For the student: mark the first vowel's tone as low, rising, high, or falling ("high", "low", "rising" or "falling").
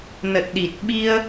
low